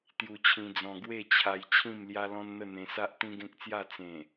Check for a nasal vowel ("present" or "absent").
present